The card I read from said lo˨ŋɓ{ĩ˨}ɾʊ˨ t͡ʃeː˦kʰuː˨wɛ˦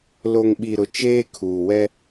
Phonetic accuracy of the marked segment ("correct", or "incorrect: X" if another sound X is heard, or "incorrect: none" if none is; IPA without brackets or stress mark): incorrect: i˨